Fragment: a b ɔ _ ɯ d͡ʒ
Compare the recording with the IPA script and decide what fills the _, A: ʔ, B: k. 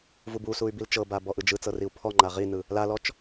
A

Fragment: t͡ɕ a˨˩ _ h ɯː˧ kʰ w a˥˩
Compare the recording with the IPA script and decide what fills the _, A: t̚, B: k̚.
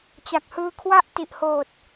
B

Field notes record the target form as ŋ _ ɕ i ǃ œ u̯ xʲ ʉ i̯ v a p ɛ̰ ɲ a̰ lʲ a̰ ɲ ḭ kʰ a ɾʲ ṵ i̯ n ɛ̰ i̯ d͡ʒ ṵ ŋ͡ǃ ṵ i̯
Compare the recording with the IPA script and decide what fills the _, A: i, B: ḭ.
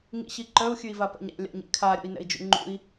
B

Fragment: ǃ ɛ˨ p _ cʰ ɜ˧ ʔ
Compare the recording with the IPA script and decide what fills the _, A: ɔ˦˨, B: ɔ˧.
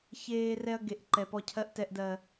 B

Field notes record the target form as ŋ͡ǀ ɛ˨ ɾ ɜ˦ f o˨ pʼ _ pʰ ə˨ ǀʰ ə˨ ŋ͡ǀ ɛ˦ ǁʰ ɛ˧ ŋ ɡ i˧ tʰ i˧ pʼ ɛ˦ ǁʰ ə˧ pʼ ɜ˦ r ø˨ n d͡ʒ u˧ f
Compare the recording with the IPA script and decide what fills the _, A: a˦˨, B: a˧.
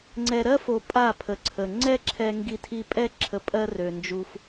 A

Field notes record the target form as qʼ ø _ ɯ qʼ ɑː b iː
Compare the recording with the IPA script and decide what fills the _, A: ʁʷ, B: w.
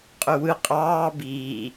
B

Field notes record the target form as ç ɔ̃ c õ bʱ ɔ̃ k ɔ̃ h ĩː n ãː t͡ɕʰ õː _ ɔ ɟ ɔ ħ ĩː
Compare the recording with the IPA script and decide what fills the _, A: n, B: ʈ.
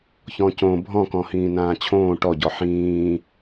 B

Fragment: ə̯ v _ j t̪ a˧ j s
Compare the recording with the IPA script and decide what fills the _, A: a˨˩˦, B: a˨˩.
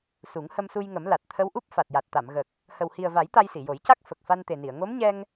A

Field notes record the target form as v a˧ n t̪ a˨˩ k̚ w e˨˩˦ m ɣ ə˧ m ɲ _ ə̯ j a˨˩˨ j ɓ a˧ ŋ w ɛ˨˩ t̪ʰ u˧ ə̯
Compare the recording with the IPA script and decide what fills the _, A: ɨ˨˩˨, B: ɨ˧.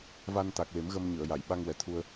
A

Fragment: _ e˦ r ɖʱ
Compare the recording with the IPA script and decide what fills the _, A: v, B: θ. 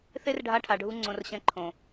B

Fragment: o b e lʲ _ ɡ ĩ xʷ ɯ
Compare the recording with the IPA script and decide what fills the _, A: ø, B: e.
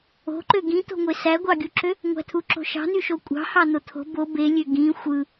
A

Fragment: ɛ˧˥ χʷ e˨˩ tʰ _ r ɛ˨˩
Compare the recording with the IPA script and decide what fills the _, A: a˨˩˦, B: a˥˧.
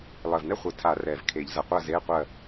A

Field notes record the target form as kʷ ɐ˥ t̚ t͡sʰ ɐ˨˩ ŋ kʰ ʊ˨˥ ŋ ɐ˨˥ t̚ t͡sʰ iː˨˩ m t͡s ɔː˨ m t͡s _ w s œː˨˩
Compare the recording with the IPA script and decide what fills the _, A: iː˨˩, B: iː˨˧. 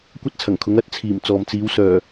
B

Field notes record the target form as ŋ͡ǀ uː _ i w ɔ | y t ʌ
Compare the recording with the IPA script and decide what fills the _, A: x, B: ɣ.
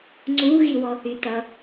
B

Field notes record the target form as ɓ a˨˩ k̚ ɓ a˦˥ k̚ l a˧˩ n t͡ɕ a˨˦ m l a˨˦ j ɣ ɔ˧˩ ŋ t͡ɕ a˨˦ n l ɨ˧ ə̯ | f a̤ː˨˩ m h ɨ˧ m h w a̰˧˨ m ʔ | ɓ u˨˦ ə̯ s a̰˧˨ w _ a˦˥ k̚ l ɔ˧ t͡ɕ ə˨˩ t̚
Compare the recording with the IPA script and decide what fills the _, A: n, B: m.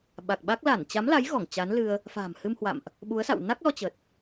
A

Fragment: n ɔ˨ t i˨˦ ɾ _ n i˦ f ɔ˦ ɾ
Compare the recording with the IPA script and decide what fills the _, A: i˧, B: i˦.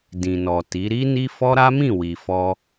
B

